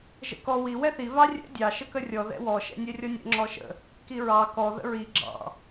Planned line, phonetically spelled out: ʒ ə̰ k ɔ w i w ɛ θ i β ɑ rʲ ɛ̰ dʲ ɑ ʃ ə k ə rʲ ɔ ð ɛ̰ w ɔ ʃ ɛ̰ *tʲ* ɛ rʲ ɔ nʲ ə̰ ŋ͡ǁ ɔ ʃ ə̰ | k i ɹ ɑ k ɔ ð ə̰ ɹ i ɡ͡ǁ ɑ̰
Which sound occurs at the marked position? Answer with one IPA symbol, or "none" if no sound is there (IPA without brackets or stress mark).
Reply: nʲ